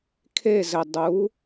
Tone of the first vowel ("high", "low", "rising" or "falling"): falling